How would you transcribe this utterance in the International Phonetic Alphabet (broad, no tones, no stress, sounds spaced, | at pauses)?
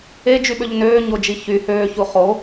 e d͡ʒ y ɓ ø ʎ n øː ɲ o d͡ʒ i ç y h øː ç u χ o